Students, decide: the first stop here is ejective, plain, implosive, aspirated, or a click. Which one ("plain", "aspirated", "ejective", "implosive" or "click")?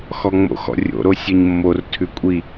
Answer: aspirated